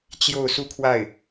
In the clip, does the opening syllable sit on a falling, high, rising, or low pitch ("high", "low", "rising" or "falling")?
falling